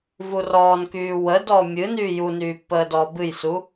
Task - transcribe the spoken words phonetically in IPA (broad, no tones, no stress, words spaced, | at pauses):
vurɔːnkyː wədɔ mʲɨ nyːjunyː pːəːdɔːbɨjsu